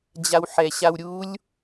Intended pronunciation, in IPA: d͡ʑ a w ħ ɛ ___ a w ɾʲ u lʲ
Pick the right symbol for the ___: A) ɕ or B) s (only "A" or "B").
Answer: A